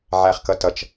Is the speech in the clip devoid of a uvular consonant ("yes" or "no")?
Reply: no